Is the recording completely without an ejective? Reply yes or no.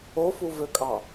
no